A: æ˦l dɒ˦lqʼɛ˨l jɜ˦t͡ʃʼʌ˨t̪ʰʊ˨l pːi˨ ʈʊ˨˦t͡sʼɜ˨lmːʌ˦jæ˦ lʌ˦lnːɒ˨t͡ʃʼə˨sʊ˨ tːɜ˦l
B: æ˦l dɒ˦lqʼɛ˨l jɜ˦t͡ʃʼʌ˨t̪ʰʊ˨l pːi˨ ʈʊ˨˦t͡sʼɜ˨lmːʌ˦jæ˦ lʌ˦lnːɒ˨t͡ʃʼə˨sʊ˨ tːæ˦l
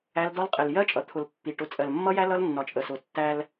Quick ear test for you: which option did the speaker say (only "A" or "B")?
B